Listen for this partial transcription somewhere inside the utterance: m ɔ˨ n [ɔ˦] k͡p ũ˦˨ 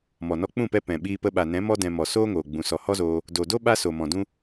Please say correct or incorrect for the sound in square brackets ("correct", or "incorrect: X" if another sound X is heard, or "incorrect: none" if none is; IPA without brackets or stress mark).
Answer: incorrect: ɔ˧